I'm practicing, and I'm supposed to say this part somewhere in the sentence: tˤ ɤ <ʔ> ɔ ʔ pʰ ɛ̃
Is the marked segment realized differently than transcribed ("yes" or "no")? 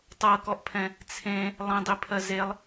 yes